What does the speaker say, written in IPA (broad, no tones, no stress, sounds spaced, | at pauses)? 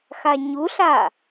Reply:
x a ɲ u ɬ a